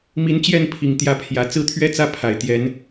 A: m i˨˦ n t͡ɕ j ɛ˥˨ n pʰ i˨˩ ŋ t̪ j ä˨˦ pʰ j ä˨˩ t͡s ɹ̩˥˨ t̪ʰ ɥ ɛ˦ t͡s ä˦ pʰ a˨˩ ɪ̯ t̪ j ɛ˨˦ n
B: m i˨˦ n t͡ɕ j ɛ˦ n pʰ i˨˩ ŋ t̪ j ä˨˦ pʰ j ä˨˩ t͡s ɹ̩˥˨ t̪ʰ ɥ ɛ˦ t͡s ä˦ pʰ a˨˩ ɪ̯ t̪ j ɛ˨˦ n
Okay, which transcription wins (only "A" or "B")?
A